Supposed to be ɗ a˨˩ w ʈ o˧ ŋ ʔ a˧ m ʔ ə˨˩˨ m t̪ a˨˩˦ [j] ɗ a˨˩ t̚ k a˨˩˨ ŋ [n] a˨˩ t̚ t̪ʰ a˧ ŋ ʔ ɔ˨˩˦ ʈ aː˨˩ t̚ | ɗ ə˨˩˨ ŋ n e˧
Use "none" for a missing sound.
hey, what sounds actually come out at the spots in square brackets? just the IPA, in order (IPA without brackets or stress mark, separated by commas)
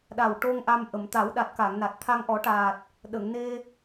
w, n